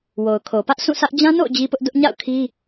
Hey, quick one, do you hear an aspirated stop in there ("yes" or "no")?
yes